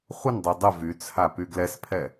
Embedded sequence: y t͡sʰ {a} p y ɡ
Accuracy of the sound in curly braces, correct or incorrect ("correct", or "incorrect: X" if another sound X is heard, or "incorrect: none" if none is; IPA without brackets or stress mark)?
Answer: correct